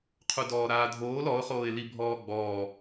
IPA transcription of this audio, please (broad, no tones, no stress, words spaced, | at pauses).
qʰudɔːɾaːdʱoːl ɔʊ̯χoːɪ̯li bʱɔːɡ͡bɔː